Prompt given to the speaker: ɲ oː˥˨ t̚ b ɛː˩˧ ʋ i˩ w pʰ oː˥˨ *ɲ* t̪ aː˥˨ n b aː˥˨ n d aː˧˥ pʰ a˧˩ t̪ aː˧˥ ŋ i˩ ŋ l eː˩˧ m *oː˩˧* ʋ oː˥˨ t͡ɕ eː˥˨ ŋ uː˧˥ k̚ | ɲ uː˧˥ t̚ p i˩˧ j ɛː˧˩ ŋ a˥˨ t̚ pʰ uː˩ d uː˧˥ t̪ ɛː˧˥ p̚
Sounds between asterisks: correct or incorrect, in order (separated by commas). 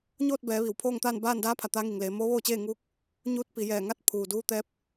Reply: incorrect, incorrect